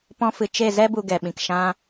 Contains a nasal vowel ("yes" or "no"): yes